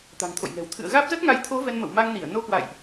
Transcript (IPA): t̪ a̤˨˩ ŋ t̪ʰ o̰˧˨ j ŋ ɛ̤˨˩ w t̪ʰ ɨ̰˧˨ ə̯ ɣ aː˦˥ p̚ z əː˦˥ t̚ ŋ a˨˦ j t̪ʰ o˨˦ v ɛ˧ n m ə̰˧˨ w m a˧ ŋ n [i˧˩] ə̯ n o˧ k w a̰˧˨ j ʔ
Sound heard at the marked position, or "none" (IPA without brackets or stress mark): i˧˩